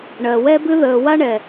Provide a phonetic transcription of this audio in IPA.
ɳ ɜ˨ w ɛ˦ b ɨ˦ ð əː˨ w a˦ ɳ ɛ˨

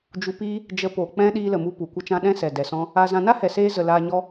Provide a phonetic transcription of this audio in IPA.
d͡ʒ u˧ p iː˦ | d͡ʒ ə˧ p o˨ k͡p ɛ̃˦ ɗ iː˧ l ə˨ m u˧ p u˨ kʷ ə˦ t͡ʃ ã˦ ɗ ɛ̃˦ s ɛ˨ d ɛ˨ s ɔ̃˦ | a˧ z ã˧ n a˦ h ɛ˨ s eː˧ z ə˨ l aː˧ ɲ ɔ˦

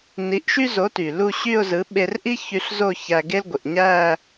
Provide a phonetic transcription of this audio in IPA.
n i˨˥ ʔ ʃ y˥ z o˨˥ t y˩ l u˥˧ ɕ y˥˧ ʊ̯ z ɯ˨˥ ɓ e˧ r ʔ i˥ ç y˧ ɬ z o˥˧ ç æ˧ ɡ e˥ l ɡʷ i˩ ʔ ɲ æ˥˧

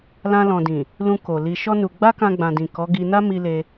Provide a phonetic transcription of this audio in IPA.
l ã˧ l ɔ̃˨ d ĩ˨ | l ũ˧ k o˨ l i˧ ʃ ɔ˦ n u˧ ɡ͡b a˦ k ã˧ ɡ͡b ã˨ d ĩ˨ k ɔ˨˦ ɡ i˧ n a˦ m i˦ l e˦

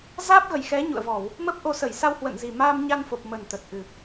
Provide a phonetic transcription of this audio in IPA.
z aː˦˥ p̚ ɣ ə˨˩ j x ɛ˨˦ ɲ ṵ˧˨ ə̯ v ɔ˧˩˨ w | m ə˦˥ p̚ ʔ o˨˦ s ə˧˩ j s a˧ w h w ə̰˧˨ n z i˨˩ m aː˧ m ɲ a˧ n f o˨˩ p̚ m ə˨˩ n t̪ ə˨˩ t̚ ʔ ɨ˨˩

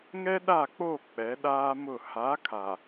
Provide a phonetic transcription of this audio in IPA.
ŋ ɛ˦ ɗ a˦˨ k͡p o˦˨ k͡p ɛ˨˦ ɗ aː˦ m ʊ˦˨ h a˨˦ kʰ a˨

